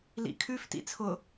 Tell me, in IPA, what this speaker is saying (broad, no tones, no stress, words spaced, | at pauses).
lḭkʰʉf tḭt͡sʰʊ